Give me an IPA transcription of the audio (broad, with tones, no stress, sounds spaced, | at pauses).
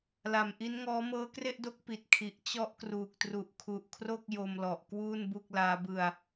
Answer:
l a˨˩ m ʔ i˦˥ n ŋ ɔː˦˥ m ɤː˦˥ k r e˥˩ ʔ d o˦˥ k̚ p i˨˩ t̚ kʰ i˨˩ ʔ t͡ɕ ɔ˦˥ ʔ k r uː˨˩ k̚ t r u˨˩ ʔ kʰ u˨˩ ʔ kʰ r o˥˩ k̚ j o˧ m l ɔ˨˩ ʔ k w uː˥˩ n b u˥˩ k̚ l aː˦˥ b ɯ˧ a̯